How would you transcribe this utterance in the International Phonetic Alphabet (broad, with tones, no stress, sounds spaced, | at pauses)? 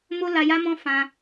m o˦ l a˧ j a˦ m ɔ̃˦ f ã˧